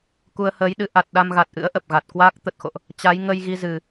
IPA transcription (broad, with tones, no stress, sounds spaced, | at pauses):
k u˧ ə̯ h əː˨˦ j ɗ ɨ˨˦ ʔ a˨˩ t̚ ɗ a˧ m ɣ a˨˩ t̚ ʔ ɨ̰˧˥ ə̯ ʔ ə˨˩ p̚ ɣ a˨˩ t̚ k w aː˦˥ k̚ t̪ ə˨˩ t̚ x o̰˧˨ ʔ | t͡ɕ a˨˦ j ŋ ə˧ j ɣ i˧ z ɨ˨˩